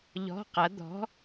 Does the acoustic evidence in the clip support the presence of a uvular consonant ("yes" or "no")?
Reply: yes